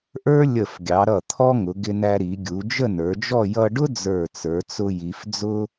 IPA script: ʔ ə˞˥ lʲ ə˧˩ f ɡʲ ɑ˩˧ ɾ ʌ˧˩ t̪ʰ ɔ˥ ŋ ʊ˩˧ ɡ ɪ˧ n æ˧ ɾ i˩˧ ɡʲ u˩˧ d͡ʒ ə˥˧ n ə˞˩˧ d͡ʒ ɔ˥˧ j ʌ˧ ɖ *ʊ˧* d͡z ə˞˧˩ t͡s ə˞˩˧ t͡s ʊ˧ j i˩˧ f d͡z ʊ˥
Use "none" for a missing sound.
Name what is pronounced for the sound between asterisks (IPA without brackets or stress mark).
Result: ʊ˥